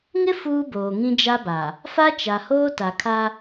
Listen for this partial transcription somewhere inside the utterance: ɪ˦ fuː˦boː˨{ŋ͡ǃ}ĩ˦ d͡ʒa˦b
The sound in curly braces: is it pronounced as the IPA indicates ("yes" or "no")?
no